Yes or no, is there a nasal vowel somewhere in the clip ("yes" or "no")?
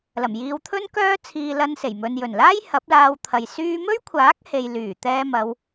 no